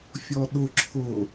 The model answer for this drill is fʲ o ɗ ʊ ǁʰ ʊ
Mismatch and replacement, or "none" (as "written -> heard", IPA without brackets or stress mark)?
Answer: o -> ɔ